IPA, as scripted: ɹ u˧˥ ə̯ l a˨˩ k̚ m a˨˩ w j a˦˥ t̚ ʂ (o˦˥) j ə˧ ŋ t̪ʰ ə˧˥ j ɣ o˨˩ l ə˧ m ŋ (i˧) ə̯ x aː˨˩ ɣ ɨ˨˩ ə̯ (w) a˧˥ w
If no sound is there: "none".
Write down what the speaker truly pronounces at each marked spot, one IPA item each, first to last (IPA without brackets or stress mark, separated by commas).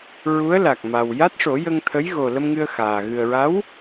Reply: o˨˩˦, ɨ˧, ɹ